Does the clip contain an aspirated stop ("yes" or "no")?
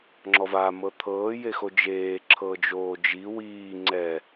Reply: yes